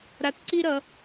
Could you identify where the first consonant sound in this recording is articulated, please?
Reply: alveolar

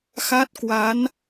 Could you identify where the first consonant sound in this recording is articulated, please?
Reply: velar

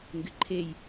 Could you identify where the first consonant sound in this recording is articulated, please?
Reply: velar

